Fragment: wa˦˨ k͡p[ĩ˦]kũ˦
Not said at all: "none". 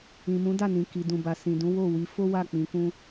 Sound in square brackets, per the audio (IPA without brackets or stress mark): ĩ˧